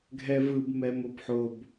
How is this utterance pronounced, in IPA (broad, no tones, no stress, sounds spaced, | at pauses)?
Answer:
ɡʱ ɛ v ɯ b m ɛ m o b ħ o b